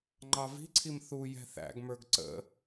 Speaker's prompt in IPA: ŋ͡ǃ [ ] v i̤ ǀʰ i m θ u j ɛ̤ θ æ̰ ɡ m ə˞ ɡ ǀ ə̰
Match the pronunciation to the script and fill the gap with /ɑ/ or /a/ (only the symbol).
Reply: ɑ